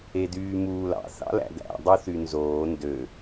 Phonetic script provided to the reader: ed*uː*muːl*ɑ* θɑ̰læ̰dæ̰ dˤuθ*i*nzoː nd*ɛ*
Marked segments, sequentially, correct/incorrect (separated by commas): incorrect, incorrect, incorrect, incorrect